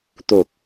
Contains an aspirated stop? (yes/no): no